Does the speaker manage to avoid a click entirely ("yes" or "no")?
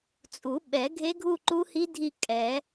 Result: no